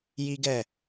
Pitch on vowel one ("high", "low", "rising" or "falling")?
high